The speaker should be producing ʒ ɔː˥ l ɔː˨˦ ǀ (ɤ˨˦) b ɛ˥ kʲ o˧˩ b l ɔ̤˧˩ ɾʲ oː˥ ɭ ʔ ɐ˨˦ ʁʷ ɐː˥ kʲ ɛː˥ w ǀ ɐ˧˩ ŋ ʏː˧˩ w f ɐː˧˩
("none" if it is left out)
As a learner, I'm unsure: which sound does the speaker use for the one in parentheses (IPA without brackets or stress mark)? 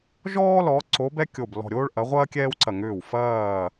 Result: o˨˦